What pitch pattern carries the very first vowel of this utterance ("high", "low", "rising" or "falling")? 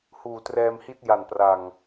low